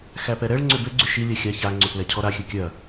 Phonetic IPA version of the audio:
x æ p ɛ ɾ ɛ ɭ ŋ͡ǀ ʏ b ʏ ɡ͡ǀ ʏ ʃ i lʲ æ xʲ a ç a ŋ͡ǀ ʏ p l ɛ cʰ ɔ ɾ a xʲ ɨ kʲ ɐ

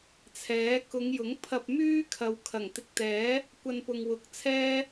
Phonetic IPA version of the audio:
t͡sʰ ɛː˨˥ k ʊ˨˧ ŋ j ʊ˨˥ ŋ pʰ ɐ˧ p̚ m yː˥ kʰ ɐ˨ w kʰ ɐ˨˩ ŋ t̪ ɪ˧ k̚ t̪ ɛː˨˥ | kʷ ɐ˧ n p ʊ˨ ŋ w ʊ˨˥ k̚ t͡sʰ ɛː˥

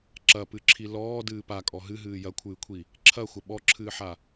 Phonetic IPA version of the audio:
ǁ ɐ p ɨ ǁʰ i l ɔː d ɨː p a kʼ ɔ ɦ ɨ ɦ ɨː j ɐ kʷʰ ɨː kʷʰ i | ǁʰ ɐ xʷ ɐ ɓ ɔ ǁʰ ɨː ħ a

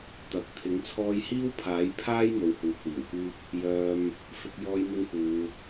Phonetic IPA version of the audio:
t̪ ɐ˨ k̚ t̪ʰ ɪ˨˥ ŋ t͡sʰ ɔː˥ j h iː˥ w pʰ aː˨˥ j pʰ aː˥ j m o˨˧ w h uː˨ k̚ w iː˨˩ w k yː˥ p̚ | j œː˧ m | f ɪ˧ k̚ j ɔː˥ j m ɪ˥ ŋ k uː˨˧

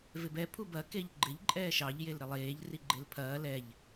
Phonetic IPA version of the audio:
v ɪ b ɛ pʰ u b ɐ k e ʎ ɡ͡ǃ ɪ ʎ ǃʼ ɛː ʃ ɑ ʎ j e l ɾ ɪ lˠ eː ʎ r i ɡ͡ǃ e l pʰ ɐː l ɛ ʎ

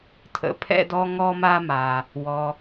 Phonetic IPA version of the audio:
tʰ ə̰˩ pʰ ɛ̰˧ d ɔ˧ ŋ ɔ˧ m a˧ m a˩ | w ɔ˩

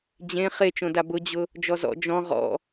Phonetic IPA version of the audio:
d͡ʑ ẽ χ e t͡ʃ õ d a b ʊ d͡ʑ ʊ | d͡ʒ ɔ z ɔ̰ d͡ʒ ɔ̃ ʁ ɔ̰

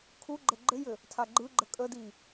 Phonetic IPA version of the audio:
kʰ u ɡ͡ǃ ə ɡ͡ǃ ɘ j ɘ | tʰ a ɡ͡ǃ ɯ ɡ͡ǃ ə kʼ ə d i

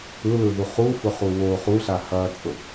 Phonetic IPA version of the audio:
ɯ l ɯ ð u χ u f ʊ χ u w o χ u ɬ a h ɐ t͡sʼ ʊ

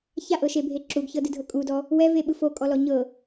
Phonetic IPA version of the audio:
ç a ʔ ɤ ʃ e bʱ e ǁ u ɡ ç ɤ d ɯ dʱ ɤ kʼ u d ɔ | w ɛ v e ɓ ɯ f o kʼ ɔ l ɔ ɲ ɤ

